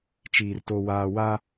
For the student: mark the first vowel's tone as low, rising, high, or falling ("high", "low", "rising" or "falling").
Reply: low